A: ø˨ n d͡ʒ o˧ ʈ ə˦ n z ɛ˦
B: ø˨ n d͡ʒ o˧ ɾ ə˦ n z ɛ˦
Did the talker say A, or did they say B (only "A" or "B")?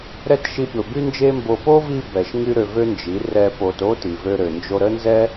B